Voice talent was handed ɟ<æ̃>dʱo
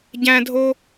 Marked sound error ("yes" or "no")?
no